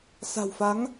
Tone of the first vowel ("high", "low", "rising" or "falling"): low